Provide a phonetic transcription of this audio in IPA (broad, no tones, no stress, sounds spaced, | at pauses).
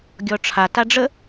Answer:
ɡʲ ɔ ʈ͡ʂʰ a t a ɖ͡ʐ ə